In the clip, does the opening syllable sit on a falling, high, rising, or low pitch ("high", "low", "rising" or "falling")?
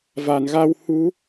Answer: low